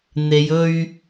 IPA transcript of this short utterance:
n̪ e˨˧ j ɵ˧ ɥ

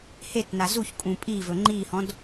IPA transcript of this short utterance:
h e t n a z u ç kʼ ũ pʼ i v ɵ ŋ͡ǃ i h ɔ̃ d

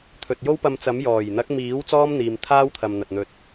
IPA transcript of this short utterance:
t̪ʰ ɵ˨ t̚ j o˥ w p ɐ˧ m t͡s ɐ˨˥ m j ɔː˨˩ j n̪ ɐ˨˥ k̚ m iː˨˥ w t͡s ɔː˥ m n̪ iː˨ m t̪ʰ aː˥ w t̪ʰ ɐ˨ m n̪ ɐ˨ t̚ n̪ ɵ˧ t̚

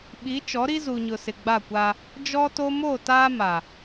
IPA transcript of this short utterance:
ɓ i˨˦ t͡ʃ ɔ˨˦ ɾ i˦ z u˨ ɲ ʊ˨ s ɪ˨ ɡ͡b a˦˨ kʷ a˦ | d͡ʒ ɔ˦ t o˦ m o˦˨ t aː˦ m a˨

